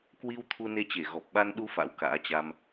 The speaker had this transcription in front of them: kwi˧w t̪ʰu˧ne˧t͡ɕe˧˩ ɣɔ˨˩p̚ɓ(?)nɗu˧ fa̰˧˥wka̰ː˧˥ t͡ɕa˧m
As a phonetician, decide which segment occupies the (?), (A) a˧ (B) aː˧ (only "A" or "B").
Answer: A